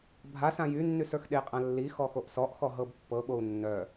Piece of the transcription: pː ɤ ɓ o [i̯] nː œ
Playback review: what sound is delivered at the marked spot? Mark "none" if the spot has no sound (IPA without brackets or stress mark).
u̯